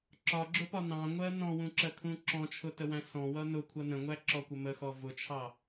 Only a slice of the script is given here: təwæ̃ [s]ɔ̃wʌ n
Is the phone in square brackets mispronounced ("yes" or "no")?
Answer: no